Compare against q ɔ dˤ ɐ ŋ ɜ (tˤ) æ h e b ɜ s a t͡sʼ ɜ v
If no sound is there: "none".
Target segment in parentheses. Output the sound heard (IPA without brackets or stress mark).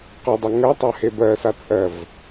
tˤ